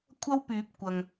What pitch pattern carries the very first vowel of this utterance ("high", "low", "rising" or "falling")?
high